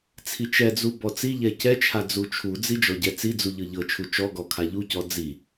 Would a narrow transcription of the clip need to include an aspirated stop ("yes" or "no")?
yes